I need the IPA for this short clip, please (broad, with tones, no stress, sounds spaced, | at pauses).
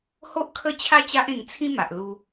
h o˦ ʔ kʰ ə˦ t͡ɕʰ a˦ t͡ɕ a˦ ʔ ẽ˧ ŋ t͡sʰ ĩ˦ m a˨ ʔ l u˧